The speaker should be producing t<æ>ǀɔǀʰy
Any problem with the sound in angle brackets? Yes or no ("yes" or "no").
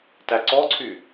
no